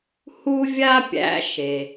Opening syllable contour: high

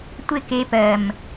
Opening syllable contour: falling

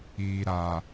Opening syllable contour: low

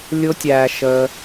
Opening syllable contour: high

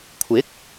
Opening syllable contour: rising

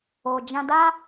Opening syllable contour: low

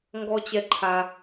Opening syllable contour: high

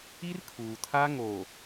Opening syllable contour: high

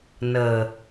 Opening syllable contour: low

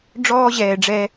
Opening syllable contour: high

